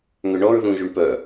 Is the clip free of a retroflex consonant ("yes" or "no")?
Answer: no